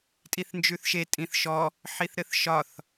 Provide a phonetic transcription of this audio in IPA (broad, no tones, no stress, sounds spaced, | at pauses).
tʼ i θ n d͡ʒ ʉ θ ʃ e tʼ ĩ θ ʃ ɔ | ħ i θ ɾ ɘ θ ʃ ɒ θ